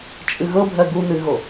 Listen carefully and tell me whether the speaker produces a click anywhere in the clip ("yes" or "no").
no